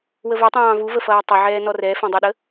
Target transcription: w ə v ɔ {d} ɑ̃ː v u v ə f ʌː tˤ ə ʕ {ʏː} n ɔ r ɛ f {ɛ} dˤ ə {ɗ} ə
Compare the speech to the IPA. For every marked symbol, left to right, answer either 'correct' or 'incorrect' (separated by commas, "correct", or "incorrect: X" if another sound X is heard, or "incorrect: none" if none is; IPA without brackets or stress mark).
incorrect: tˤ, incorrect: ɛː, incorrect: ɛ̃, correct